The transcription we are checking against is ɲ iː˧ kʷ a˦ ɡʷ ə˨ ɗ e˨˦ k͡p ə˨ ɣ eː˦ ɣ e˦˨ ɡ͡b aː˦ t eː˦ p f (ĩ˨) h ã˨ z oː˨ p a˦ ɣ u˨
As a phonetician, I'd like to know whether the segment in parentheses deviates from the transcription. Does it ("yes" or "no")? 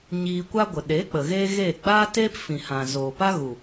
no